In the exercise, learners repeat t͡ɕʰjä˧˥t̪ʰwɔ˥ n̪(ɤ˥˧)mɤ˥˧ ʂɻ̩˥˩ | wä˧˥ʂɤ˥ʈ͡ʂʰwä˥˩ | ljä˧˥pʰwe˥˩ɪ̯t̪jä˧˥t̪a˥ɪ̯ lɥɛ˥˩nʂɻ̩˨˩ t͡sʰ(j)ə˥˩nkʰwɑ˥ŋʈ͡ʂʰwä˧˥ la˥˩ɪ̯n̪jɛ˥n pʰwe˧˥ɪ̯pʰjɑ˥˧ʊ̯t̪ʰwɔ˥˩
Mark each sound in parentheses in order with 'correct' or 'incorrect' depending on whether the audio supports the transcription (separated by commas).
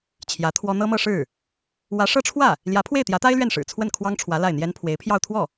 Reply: incorrect, incorrect